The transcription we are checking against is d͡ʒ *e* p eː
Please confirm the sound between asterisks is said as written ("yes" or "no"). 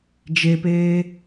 yes